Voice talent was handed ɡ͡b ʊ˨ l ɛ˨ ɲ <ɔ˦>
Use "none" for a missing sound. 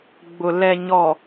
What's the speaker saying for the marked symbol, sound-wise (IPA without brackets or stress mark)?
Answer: ɔ˨